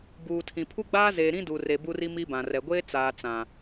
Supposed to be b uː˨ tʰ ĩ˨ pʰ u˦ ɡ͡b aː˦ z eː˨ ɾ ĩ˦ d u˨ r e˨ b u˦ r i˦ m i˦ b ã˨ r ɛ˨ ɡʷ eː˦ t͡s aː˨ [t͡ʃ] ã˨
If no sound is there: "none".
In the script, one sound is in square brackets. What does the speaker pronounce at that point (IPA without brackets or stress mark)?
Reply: t͡s